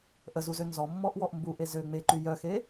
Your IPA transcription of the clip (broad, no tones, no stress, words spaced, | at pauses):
ʔəzuzø nzɔmːɔʔwɔʔ mbuʔe zø ŋ͡meǃy jœxe